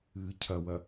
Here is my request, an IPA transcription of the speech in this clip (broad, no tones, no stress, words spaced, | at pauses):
ɨːcʰɐwɐ